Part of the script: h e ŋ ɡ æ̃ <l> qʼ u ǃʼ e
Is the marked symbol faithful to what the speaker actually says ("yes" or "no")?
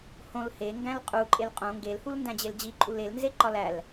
yes